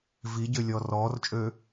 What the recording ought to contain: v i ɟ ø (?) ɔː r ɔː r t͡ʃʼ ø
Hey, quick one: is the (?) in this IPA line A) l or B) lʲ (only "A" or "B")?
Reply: B